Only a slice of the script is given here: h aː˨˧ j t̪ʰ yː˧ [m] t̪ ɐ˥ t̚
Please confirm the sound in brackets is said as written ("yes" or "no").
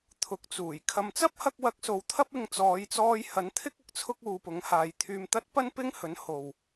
yes